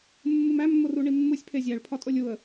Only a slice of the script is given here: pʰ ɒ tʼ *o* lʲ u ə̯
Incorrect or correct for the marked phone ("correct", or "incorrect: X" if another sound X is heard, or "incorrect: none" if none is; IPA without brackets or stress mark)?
correct